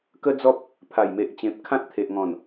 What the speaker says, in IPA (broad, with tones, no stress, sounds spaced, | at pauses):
k ə˦ d͡z ɔ˦ p̚ | pʰ a˨˩ j m e˨ ʔ t͡ɕ ẽ˨ p̚ kʰ ã˦ t̚ t̪ʰ e˨ ʔ ŋ ɔ̃˨˩ n